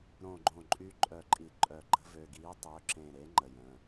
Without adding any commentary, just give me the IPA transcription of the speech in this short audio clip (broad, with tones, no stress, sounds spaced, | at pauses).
ɾ õ˧˩ ɡ͡ǃ õ˧˩ ǃʼ y˧˥ ǃʼ œ˧˩ ǃʼ i˧˩ ǃʼ œ˧˩ ɡ͡ǃ ə̤˧˥ v ø˩˧˩ ɡ iː˧˥ tˤ ø˩˧˩ ǁ ẽ˧˩ ɾ e˧˥ ŋ͡ǃ ə˩˧˩ j ə̃ː˩˧˩